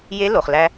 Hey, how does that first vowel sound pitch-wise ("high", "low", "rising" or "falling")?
rising